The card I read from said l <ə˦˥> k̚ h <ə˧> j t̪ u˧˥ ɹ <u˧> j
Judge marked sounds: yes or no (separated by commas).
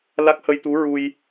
no, yes, yes